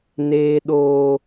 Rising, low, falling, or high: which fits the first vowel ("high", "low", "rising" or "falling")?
high